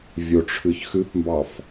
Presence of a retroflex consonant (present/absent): present